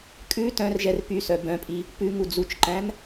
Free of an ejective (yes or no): no